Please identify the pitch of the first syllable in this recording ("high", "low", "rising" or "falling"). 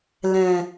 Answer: low